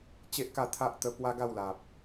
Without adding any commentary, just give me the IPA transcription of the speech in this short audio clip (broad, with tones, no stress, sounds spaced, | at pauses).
t͡ɕ e˦ ʔ k a˥˧ t̪ʰ a˦ ʔ t̪ ə˧ p w a˦ ɡ a˥˧ w l a˨ p̚